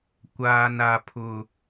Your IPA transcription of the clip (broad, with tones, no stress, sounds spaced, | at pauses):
kʷ aː˨ n a˨ pʰ ʊ˨